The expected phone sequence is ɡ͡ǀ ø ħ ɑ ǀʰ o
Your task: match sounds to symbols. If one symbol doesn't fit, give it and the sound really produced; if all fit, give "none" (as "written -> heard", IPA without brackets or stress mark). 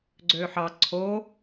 none